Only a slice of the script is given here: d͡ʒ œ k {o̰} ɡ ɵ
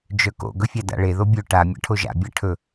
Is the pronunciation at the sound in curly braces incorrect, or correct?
correct